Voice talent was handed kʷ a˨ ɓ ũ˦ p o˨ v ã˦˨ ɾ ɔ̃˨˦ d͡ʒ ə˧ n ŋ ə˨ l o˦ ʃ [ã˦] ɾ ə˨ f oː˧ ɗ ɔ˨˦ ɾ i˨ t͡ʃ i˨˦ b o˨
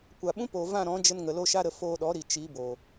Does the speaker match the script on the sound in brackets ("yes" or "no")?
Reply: no